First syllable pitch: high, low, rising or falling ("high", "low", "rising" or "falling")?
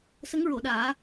rising